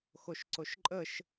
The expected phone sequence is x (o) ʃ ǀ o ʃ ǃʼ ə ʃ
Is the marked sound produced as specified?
yes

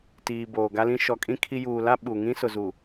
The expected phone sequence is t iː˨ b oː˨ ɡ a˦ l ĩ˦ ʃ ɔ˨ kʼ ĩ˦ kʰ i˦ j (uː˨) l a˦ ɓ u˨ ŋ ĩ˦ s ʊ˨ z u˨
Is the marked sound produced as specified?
yes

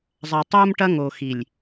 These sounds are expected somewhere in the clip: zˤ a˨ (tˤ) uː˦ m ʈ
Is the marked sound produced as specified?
yes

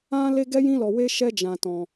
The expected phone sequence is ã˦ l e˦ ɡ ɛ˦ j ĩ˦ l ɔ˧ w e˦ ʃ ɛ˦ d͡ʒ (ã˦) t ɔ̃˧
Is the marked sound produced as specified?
no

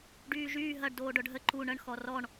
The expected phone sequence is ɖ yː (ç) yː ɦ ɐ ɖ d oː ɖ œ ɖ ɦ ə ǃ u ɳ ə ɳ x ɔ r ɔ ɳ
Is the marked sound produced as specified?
no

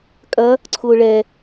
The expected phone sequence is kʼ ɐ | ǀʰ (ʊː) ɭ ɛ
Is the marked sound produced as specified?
yes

